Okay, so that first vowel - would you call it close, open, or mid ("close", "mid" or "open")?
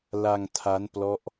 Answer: open